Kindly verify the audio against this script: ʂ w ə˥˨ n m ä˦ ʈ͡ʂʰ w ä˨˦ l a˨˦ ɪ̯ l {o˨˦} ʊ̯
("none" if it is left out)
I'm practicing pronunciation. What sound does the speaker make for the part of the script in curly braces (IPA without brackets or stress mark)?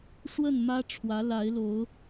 o˨˦